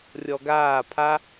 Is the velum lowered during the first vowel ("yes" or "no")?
no